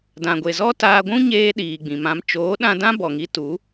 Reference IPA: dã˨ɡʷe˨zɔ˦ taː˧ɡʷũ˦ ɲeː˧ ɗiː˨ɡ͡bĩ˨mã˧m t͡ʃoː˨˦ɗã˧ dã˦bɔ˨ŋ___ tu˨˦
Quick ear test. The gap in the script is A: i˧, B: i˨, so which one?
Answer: A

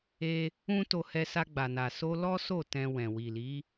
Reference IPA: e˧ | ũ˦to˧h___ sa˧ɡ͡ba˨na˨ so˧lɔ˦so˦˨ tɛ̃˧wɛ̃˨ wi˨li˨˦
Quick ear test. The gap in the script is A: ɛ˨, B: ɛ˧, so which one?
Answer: B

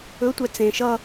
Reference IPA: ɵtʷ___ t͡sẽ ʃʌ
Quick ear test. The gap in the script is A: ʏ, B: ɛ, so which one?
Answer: B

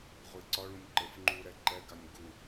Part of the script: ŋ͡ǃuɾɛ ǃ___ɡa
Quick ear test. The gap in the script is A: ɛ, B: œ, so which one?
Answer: A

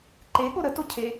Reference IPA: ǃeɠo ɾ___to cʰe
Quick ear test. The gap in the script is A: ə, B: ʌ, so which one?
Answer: A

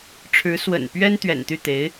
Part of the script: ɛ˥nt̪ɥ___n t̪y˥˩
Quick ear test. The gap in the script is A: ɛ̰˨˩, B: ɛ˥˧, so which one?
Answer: A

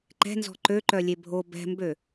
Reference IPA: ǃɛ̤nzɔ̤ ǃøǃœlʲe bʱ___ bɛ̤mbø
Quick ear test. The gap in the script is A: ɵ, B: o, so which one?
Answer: B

